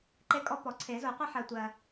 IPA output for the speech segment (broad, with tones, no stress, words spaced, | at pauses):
ǃe˧kʼɔ˧ pɔ˩ǀʰe˨˩˦zo˨˩˦ qʷe˧ħɜ˩tʷɜ˩